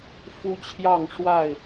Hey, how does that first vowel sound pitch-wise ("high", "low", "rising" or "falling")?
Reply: high